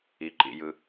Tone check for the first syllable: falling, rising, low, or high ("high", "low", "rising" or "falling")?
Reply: low